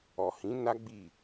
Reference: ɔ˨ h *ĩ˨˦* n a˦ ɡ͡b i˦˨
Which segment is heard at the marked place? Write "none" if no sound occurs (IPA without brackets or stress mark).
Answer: ĩ˨˦